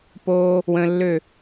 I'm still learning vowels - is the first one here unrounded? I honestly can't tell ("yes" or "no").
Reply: no